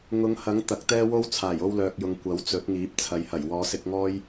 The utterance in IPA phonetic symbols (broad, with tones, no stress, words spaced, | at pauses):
ŋʊ˨˧ŋhɐ˨˥ŋ t̪ɐ˨˥k̚t̪ɛː˥ wo˥w t͡sʰaː˨˩jo˧wlœː˨k̚jʊ˨ŋ kʷɐ˨˥wt͡sɵ˨˥t̚ŋiː˨˥p̚ t͡sʰɐ˨jhɐ˨˩jwɔː˨˧sɪ˧k̚ ŋɔː˥j